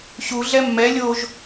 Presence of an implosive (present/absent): absent